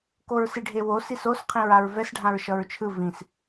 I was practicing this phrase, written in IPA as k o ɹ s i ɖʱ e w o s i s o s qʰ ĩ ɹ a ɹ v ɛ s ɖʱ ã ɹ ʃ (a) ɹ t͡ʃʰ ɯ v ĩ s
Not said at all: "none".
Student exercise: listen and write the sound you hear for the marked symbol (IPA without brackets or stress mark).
ʌ